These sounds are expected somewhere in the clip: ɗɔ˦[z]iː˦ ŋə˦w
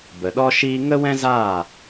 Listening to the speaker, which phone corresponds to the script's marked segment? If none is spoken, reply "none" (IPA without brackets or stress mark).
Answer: ʃ